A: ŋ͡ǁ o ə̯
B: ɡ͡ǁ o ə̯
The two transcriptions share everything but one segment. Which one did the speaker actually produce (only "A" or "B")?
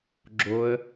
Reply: B